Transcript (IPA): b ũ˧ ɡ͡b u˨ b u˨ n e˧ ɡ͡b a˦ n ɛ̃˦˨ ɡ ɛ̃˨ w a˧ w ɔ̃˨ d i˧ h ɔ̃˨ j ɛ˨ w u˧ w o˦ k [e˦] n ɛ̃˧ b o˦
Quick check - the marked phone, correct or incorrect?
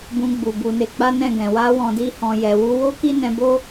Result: incorrect